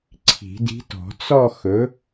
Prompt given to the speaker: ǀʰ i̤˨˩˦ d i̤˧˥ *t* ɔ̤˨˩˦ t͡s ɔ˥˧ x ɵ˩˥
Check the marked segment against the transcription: correct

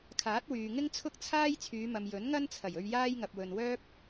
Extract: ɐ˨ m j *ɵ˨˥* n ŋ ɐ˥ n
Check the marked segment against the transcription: correct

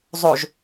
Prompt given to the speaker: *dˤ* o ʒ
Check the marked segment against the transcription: incorrect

